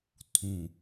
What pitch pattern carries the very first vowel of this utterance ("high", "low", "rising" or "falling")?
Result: low